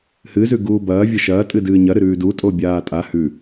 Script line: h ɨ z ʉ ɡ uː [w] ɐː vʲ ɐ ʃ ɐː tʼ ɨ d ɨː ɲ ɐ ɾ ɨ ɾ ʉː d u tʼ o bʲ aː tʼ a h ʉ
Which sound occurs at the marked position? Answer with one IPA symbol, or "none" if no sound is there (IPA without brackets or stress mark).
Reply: b